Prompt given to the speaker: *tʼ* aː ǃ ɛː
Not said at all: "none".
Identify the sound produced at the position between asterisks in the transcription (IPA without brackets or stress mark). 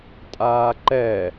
tʼ